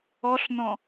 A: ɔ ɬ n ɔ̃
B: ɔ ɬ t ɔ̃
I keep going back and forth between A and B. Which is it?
A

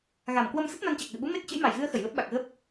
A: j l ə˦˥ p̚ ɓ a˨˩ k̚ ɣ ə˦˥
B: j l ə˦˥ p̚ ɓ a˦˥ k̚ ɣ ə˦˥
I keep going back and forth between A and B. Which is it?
A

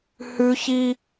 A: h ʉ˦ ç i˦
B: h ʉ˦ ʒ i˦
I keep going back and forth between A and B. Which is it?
A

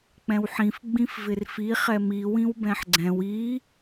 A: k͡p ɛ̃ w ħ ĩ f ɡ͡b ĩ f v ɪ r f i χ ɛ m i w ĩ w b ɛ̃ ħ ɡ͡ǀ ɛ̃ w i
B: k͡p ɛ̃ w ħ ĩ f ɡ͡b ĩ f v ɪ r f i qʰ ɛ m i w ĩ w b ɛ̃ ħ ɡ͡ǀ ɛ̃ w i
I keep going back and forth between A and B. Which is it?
A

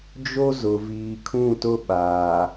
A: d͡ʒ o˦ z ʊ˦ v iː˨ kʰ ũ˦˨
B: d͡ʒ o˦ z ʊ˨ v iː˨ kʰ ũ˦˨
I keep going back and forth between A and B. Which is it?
B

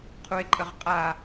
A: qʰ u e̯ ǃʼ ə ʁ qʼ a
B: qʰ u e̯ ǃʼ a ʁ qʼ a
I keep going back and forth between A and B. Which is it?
A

